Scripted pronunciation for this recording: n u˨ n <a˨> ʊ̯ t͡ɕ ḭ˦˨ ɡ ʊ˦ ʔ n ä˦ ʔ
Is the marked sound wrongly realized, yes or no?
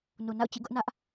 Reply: yes